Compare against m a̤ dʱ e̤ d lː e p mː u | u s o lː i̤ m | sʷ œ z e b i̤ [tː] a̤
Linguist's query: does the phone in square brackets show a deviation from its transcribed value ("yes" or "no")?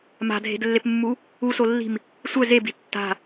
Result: no